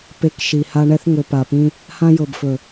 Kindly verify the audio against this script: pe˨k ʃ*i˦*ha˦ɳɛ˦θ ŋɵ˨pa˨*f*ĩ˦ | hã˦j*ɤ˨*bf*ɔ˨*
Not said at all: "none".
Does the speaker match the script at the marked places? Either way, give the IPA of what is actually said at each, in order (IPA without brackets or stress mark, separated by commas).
i˨, p, ɤ˨, ɵ˨